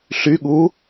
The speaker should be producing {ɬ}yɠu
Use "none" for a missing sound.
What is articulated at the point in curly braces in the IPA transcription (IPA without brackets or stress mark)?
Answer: ɬ